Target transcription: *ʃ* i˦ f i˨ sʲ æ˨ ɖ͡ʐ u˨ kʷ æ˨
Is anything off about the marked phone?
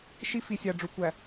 no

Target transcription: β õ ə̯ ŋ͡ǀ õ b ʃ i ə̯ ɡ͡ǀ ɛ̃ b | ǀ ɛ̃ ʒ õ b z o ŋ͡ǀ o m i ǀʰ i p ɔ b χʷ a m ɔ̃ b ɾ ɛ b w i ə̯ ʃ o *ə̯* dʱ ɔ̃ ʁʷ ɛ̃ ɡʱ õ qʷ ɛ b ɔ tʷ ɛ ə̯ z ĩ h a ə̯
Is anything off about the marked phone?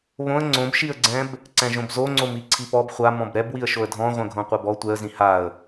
no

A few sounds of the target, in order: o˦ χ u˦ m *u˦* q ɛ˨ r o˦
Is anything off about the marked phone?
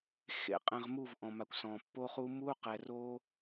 no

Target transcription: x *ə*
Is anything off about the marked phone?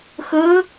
yes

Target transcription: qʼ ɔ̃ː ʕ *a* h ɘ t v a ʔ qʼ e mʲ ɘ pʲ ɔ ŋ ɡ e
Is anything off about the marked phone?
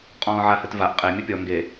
no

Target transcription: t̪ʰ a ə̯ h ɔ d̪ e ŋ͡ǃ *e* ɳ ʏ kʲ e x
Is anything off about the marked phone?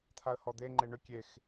no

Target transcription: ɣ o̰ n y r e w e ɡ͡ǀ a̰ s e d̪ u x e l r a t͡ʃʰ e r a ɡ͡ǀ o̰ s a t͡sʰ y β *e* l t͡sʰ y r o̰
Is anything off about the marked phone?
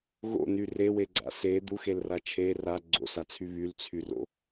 yes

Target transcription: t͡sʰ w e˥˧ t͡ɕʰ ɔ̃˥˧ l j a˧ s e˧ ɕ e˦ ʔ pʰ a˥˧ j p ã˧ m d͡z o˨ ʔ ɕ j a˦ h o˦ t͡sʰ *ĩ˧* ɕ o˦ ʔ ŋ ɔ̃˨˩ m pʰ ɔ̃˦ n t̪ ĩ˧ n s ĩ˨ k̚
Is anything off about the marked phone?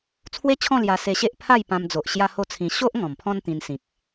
no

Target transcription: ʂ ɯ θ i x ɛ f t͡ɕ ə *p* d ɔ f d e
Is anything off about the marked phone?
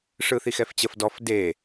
yes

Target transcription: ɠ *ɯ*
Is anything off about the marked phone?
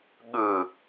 no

